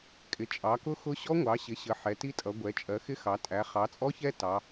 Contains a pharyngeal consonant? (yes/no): yes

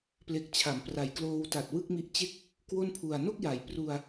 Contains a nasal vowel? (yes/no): no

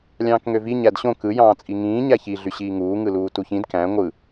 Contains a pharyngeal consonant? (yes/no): no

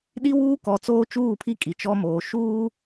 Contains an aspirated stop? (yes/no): yes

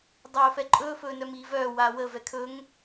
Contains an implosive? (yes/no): no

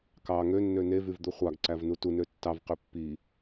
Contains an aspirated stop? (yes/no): no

